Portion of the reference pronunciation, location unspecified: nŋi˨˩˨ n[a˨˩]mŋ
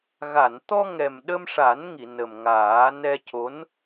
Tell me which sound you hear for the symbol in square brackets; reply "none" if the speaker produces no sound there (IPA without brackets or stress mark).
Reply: ə˨˩